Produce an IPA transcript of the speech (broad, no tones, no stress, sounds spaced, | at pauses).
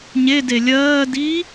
ɲ e d e lʲ ɜː d iː